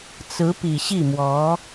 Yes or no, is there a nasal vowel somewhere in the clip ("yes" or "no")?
no